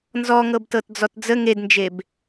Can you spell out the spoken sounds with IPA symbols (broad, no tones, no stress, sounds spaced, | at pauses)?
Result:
n z ɔ ŋ ɤ b t ɤ t d͡z ɔ t d͡z ə ŋ e d n d͡ʒ e b